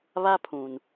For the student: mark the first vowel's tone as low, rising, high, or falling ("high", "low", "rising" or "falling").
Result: high